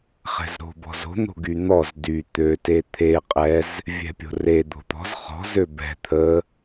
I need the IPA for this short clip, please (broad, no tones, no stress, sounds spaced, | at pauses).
χ ɛ̤ z ɾ o̤ b ɔ̤ z o̤ n̪ o̤ ɡ y n̪ ɔ z d y t̪ ø t e t̪ʰ e qʼ ɛ z | vʲ ɛ̤ pʲ o̤ r e d̪ o̤ t̪ ɔ̤ z χ ɔ̤ z ø b ɛ̤ t̪ʰ ə